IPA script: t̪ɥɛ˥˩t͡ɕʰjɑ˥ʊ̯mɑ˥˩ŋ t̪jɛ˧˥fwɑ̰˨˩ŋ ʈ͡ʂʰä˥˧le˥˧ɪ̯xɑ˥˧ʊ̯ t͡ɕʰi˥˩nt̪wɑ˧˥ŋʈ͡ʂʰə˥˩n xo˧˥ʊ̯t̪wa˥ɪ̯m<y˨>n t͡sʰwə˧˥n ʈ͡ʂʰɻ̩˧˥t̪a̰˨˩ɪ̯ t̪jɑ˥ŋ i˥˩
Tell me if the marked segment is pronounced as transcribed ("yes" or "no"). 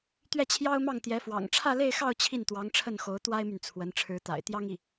yes